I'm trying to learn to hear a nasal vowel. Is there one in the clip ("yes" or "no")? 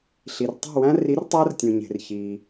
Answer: yes